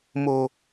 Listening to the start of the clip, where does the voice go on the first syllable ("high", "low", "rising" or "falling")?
low